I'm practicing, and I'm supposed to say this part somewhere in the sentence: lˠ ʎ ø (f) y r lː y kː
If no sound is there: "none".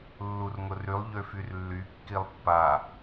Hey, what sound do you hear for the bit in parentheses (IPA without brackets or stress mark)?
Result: f